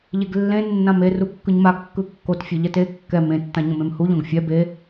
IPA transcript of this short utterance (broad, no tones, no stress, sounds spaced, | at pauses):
ʎ e ɡ lː ẽ nː ã m e r u kː ɯ ɲ m a ɡ kː ɯ kː o t fʲ e ʎ ɛ t e kː ɛ m ẽ tː ã ɲ õ m ẽ m h u ʎ õ ɡ fʲ ɛ b e